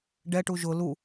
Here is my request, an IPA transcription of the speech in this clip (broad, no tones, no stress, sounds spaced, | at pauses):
ɖ ɛ ʈ u ʒ ʊ l u